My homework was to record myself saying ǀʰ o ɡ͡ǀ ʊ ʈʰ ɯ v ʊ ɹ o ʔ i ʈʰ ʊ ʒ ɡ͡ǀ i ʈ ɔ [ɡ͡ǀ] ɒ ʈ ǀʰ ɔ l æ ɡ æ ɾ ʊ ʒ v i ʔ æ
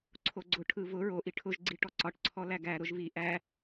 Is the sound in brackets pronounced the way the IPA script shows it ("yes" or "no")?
no